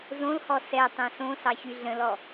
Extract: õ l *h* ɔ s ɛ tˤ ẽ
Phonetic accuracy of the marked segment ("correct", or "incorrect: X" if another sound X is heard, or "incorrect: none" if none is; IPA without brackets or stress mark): correct